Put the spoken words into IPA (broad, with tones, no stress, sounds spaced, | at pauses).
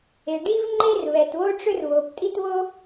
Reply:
e˩ ɖ i˥ v ŋ͡ǃ e˥ r β ɛ˩ t β o˥ ʈ͡ʂ ʏ˥ r β o˩ p tʼ i˥ t β o˥